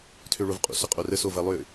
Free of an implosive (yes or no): yes